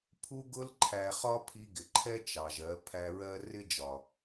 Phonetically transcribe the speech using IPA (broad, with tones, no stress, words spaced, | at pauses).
pʰu˧ɡʊ˧lǃʰæ˨ χɒ˦pʰi˧ɡɪ˨ǃʰɛ˦ t͡ʃɑ˨ʒɜ˨˦ pʰæ˧ɹɜ˦ rɪ˦d͡ʒɒ˨